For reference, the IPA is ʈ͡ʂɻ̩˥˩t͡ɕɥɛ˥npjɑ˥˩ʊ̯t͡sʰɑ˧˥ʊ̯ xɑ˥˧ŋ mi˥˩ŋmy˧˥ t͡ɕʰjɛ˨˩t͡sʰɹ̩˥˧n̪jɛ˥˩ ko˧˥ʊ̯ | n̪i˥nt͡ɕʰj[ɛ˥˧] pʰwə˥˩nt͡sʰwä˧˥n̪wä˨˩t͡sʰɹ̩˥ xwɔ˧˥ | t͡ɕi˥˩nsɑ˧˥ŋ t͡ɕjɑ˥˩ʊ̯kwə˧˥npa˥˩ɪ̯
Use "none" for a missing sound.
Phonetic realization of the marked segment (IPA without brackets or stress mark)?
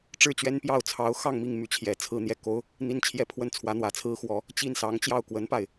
ɛ˥˧